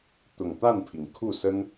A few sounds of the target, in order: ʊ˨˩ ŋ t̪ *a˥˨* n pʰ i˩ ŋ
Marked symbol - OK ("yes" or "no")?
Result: yes